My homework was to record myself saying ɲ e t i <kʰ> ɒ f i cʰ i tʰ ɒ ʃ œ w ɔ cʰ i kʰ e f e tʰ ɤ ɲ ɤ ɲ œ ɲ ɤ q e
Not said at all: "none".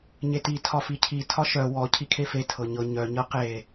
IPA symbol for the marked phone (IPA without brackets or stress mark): tʰ